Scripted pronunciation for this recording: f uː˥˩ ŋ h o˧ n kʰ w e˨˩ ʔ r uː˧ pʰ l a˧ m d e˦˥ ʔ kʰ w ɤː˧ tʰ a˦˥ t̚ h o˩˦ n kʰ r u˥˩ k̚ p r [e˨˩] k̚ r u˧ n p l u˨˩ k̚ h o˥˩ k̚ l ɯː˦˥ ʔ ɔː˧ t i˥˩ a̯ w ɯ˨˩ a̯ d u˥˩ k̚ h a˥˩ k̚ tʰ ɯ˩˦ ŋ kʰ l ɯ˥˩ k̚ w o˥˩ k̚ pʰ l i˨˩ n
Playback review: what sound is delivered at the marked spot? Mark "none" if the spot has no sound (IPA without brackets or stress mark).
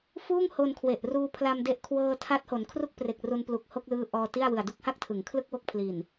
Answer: e˨˩